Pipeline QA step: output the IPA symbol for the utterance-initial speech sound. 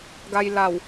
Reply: ɡ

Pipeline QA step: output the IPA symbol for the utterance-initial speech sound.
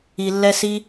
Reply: i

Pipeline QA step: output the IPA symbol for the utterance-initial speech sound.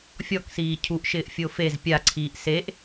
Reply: fʲ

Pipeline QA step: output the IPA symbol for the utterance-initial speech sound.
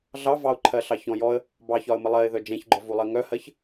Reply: ɮ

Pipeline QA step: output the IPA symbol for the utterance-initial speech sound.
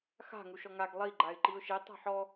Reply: x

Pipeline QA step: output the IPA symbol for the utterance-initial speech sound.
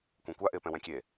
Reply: kʷ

